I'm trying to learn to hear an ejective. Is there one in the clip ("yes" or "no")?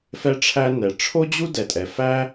yes